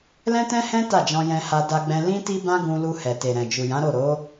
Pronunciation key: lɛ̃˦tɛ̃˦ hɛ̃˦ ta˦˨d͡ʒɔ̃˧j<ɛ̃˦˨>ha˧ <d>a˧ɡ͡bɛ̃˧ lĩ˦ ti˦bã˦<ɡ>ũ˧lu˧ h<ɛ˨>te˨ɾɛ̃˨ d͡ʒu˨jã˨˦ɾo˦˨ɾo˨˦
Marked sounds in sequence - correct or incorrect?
incorrect, correct, correct, correct

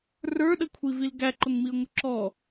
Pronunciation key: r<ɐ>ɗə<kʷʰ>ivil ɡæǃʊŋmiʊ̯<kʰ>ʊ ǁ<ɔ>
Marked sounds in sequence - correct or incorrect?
incorrect, correct, incorrect, correct

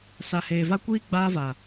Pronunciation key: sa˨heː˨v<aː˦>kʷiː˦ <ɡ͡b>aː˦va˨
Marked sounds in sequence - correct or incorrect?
incorrect, correct

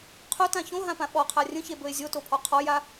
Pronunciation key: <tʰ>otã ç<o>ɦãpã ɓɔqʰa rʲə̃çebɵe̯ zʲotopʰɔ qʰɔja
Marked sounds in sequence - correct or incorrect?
incorrect, incorrect

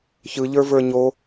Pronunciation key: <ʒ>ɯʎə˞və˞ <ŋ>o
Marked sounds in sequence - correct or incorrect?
incorrect, incorrect

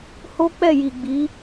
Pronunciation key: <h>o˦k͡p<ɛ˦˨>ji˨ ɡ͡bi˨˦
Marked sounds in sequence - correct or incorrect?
correct, correct

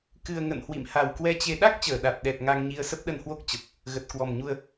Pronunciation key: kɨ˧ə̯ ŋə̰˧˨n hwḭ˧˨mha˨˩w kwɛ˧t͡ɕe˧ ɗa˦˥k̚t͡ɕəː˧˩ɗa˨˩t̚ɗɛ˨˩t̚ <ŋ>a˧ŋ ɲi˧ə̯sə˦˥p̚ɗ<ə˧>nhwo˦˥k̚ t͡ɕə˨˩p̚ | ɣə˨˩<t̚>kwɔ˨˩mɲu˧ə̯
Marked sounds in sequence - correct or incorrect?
correct, correct, correct

